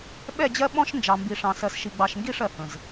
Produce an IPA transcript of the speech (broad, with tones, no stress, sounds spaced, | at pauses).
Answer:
ɓ ɛ˦˨ d͡ʑ ɜ˦ ɓ ɔ̃˦ ʃ n d͡ʒ ɑ˨ m b i˨ ʂ ɑ̃˨ s ɜ˨ s ʃ i˨ ɡ͡b ɑ˨ ʃ ŋ ɡ i˦˨ ʂ ɜ˨ h ə̃˨ z